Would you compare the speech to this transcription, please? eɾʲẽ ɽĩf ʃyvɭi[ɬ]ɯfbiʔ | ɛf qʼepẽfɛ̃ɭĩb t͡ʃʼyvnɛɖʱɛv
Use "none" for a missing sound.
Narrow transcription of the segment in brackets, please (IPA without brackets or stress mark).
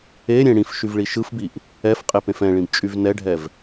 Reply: ʃ